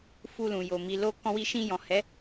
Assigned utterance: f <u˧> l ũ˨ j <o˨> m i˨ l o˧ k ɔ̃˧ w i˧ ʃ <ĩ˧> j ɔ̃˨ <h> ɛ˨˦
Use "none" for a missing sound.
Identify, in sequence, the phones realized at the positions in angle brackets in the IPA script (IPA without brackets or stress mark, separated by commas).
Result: u˧, o˨, ĩ˧, h